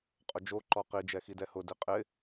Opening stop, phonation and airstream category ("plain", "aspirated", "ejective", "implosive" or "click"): ejective